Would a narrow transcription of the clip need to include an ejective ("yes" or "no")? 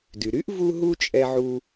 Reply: yes